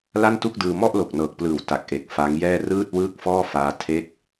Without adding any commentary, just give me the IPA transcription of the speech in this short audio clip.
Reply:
l a˥˩ n t u˥˩ k̚ d ɯː˧ m ɔ˥˩ ʔ l o˨˩ k̚ n ɤː˨˩ k̚ p l ɯː˨˩ w t a˨˩ k̚ ʔ e˨˩ k̚ f a˦˥ ŋ j ɛː˥˩ r ɯː˥˩ t̚ w ɯː˥˩ k̚ f ɔː˥˩ f aː˦˥ tʰ e˥˩ k̚

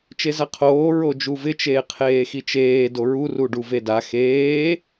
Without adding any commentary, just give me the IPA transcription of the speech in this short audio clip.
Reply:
t͡ʃ e z a qʰ oː ɹ o d͡ʒ u v ɪ t͡ʃ eː qʰ eː x i t͡ʃ eː d o ɹ u r u ɖ u v e d a x eː

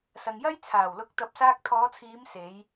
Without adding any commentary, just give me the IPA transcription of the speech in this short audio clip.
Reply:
s ɐ˨ ŋ j ɐ˥ j t͡sʰ aː˨˩ w l ʊ˨˥ k̚ t̪ ɐ˨˥ p̚ s aː˧ k̚ t̪ʰ ɔː˨˧ t͡sʰ iː˨˧ m s e˨˧ j

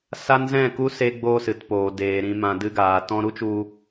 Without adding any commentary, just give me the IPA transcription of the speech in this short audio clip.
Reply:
s a˦ n z ɛ̃˦˨ k u˦ s e˧ ɡ͡b o˧ s ɨ˨ t p oː˨ d eː˨ ɾ ĩ˨ m ã˨ d ɨ˧ ɡ aː˨ t ɔ̃˧ ɾ u˦ t͡ʃ u˧

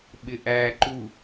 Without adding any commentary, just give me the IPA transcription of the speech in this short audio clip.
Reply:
ɓ ɪ ʔ æ ǃ u

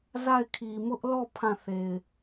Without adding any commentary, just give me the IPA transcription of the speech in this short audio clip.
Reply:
z a˦˨ ɪ̯ kʰ i˨ m ʊ˦ ʔ l ɔ˦˨ pʰ ã˦˨ θ e˨ ɪ̯

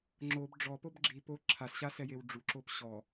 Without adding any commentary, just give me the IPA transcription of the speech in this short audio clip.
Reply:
ŋ͡ǁ o b ɖ͡ʐ ɔ p o b ɡ͡ǁ i p o ǁʰ a s ɕ a s ɛ j e w ɖ͡ʐ u ǁ o p ɕ ɔ

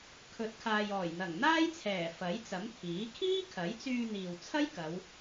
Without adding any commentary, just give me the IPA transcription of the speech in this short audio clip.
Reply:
kʰ ɵ˨˥ t̚ kʰ aː˨ j ɔː˨˩ j n̪ ɐ˨˩ ŋ n̪ aː˥ j t͡sʰ ɛː˨˩ f ɐ˨˥ j t͡s ɐ˨˥ m t̪ʰ iː˨˥ kʰ iː˥ kʰ ɐ˨˥ j t͡s yː˧ n̪ iː˨ w t͡sʰ ɐ˥ j k ɐ˨˧ w

